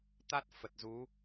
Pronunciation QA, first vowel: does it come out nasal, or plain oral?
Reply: oral